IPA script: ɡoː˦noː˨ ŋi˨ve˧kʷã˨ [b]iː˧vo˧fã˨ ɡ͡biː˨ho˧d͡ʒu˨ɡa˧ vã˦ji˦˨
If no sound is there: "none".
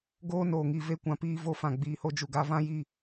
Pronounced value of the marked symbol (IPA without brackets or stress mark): p